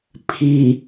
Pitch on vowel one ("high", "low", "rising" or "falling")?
low